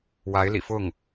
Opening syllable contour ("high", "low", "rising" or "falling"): rising